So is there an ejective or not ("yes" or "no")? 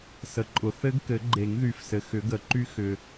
yes